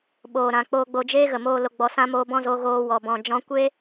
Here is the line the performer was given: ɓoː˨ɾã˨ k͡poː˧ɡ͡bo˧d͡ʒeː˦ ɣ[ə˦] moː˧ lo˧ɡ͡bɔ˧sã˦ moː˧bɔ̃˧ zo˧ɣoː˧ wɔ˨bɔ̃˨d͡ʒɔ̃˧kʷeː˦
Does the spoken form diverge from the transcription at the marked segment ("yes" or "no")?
yes